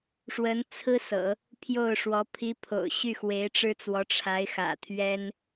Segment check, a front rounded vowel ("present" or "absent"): present